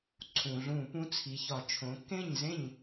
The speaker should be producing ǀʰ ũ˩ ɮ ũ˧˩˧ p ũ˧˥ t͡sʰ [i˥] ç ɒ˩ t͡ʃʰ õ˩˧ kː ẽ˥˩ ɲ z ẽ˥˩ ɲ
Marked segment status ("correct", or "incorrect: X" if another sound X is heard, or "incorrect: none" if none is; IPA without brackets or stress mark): incorrect: i˩˧